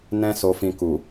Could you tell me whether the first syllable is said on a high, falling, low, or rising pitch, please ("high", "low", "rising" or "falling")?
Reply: high